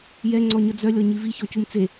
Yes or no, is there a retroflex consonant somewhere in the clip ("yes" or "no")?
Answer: no